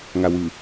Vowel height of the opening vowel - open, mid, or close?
open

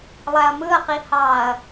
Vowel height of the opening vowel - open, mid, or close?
open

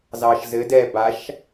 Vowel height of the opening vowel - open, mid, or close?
open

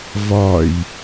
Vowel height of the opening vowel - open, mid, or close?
open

